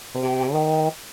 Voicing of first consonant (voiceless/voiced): voiced